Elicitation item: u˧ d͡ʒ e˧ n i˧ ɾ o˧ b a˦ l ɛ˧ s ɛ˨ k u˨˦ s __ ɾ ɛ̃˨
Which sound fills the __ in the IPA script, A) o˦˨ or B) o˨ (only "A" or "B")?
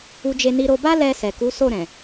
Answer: A